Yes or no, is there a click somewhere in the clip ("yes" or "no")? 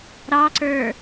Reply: yes